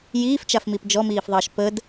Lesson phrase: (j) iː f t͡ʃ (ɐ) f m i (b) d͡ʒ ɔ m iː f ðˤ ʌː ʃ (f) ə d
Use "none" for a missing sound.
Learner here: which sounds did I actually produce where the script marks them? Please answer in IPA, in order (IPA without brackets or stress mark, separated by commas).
j, a, p, p